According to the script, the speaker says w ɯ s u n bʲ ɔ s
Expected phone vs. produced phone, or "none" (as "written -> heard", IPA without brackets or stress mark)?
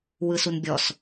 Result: none